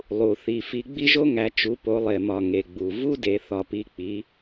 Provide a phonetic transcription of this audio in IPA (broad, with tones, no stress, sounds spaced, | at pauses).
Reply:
lˠ u˨˩ θ i˨˩ f i˨˦ ɡ͡b i˥ ʒ o˥ ŋ æ˨˦ t͡ʃ u˨˦ p o˨˦ lˠ e˨˩ m ɒ˨˩ ŋ e˨˩ ɡ͡b u˨˩ v u˥ d e˨˦ θ ɒ˨˩ p i˨˦ k͡p i˨˦